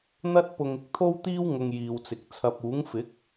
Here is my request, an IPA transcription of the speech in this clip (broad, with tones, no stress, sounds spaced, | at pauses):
n̪ ɐ˥ t̚ p ʊ˧ ŋ ɪ˥ k̚ t̪ʰ o˥ w t̪ iː˥ w ŋ ʊ˧ ŋ j iː˨ w t͡s ɪ˨ k̚ t͡sʰ ɐ˨ p̚ uː˨˥ ŋ f ɪ˨˥ k̚